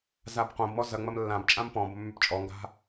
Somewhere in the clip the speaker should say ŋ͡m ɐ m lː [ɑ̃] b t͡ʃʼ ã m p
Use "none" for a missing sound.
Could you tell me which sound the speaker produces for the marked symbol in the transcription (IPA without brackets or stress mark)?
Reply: ã